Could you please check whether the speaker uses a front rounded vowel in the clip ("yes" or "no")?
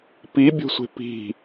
no